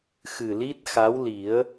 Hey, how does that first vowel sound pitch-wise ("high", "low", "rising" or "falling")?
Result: low